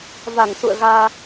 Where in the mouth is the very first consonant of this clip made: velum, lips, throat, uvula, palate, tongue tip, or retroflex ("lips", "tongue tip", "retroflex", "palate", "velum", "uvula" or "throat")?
lips